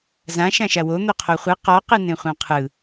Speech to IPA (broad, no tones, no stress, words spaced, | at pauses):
zã ʃãʃawo n̪oqʰoχʷɯ qɔ qɯnẽχʷãqʰɯ